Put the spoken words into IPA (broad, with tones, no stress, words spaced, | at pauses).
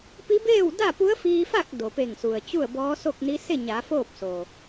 pi˧˥beː˥˨w da˥˨pu˧˥ə̯fiː˧fa˥˨k̚ do˩pe˧˩ŋsu˩ə̯ t͡ɕu˥˨ə̯bɔː˧˥so˥˨k̚ni˧˥ se˥˨ɲa˩˧ foː˥˨p̚so˩